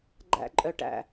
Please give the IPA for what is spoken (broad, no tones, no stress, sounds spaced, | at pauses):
ɡ͡ǃ æ̰ ǃʼ œ ʈ æ̰